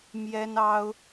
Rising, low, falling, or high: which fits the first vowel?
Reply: high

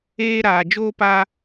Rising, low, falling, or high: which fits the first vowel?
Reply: high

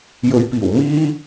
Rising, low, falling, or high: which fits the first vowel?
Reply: low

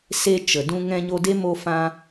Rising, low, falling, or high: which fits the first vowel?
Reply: high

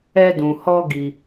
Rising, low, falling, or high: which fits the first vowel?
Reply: high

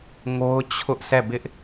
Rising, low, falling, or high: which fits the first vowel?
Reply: high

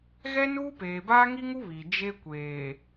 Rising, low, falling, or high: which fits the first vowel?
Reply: high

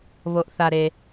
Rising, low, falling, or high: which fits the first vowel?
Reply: low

